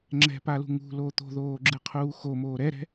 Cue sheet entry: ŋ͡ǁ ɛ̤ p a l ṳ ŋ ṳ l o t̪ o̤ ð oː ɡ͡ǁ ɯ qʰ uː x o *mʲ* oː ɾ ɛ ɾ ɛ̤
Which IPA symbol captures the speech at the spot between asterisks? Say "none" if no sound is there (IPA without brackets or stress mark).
m